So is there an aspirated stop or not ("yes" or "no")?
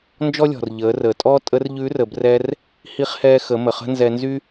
no